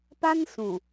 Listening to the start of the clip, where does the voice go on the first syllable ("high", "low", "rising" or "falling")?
high